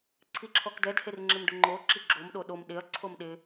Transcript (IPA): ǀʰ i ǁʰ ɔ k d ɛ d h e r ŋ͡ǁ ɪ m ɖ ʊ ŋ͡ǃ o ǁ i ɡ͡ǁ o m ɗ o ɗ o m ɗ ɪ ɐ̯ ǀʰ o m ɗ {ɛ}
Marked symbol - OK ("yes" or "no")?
no